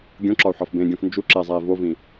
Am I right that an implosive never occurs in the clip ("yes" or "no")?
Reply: yes